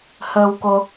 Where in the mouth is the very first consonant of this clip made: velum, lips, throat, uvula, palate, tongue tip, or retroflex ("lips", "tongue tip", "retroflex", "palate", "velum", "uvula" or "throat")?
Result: throat